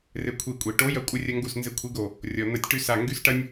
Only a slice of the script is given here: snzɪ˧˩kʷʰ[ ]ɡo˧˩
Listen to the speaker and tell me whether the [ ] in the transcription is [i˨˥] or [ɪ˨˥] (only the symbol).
i˨˥